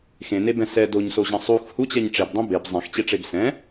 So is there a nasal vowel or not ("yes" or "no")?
yes